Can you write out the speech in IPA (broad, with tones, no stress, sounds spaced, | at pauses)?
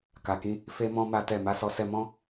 k a˨ k ĩ˧ | f e˦ m ɔ̃˦ m a˦ t ɛ˦˨ m a˧ s ɔ˧ s ɛ˧ m ɔ̃˦